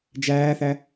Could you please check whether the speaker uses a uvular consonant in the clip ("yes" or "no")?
no